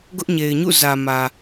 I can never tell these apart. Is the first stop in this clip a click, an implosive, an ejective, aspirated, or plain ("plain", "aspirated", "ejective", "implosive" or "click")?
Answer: plain